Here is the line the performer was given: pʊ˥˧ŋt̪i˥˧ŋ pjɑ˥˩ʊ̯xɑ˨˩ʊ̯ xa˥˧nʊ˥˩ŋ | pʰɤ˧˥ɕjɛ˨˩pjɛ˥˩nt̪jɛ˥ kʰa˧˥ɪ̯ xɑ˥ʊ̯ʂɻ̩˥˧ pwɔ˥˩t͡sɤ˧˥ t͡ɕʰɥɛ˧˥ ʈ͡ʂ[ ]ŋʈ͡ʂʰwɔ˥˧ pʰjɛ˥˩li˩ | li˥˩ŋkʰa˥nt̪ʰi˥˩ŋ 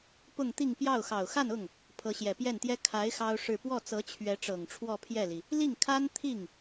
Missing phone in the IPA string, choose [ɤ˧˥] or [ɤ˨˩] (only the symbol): ɤ˨˩